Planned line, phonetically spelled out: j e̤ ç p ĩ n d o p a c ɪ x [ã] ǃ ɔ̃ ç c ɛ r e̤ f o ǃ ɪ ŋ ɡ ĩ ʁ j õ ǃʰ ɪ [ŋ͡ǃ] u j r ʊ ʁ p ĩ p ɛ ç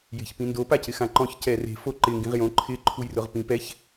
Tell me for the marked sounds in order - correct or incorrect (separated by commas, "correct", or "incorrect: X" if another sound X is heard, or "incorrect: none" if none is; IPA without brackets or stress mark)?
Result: correct, incorrect: ǃʰ